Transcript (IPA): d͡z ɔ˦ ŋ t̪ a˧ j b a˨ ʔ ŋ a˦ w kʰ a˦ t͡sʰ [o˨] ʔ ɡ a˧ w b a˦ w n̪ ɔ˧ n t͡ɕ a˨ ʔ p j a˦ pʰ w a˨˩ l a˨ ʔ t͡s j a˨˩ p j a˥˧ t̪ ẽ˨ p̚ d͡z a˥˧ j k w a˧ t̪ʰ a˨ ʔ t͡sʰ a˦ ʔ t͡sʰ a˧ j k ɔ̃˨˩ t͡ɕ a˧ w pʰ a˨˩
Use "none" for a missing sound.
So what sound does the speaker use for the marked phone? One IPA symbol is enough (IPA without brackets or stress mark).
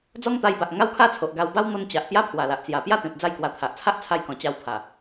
o˨